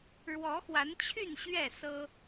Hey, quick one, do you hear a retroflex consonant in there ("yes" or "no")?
yes